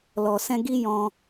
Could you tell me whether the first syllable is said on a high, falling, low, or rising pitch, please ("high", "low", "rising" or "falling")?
low